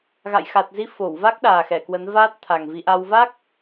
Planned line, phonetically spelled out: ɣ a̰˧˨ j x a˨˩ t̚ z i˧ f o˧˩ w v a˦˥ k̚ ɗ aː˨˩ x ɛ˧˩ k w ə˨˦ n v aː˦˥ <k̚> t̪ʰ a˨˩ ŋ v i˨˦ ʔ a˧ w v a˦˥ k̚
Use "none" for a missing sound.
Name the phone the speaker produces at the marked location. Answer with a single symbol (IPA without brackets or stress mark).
t̚